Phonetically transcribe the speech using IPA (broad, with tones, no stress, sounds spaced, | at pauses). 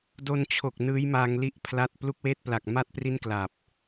d o˧ n t͡ɕʰ o˨˩ k̚ n ɯː˦˥ j m aː˧ ŋ l i˦˥ ʔ pʰ l a˦˥ t̚ p l u˦˥ k̚ w eː˦˥ t̚ p l a˨˩ k̚ m a˦˥ t̚ p r i˦˥ n k l a˨˩ p̚